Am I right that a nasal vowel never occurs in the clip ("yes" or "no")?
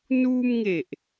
yes